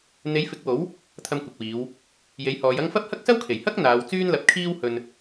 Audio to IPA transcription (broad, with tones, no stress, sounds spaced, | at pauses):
n̪ e˨˥ j f ɪ˨˥ k̚ w o˨˥ w | t̪ʰ ɐ˧ m kʷ ɪ˨ k̚ w iː˨˧ w | j e˨˥ j h ɔː˨˧ j ɐ˥ ŋ f ɐ˥ p̚ h ɐ˥ k̚ s ɐ˥ w kʰ e˨˩ j h ɐ˥ k̚ n̪ aː˨˧ w t͡s yː˥ n l ɐ˨˥ p̚ kʰ iː˥ w h ɵ˧ n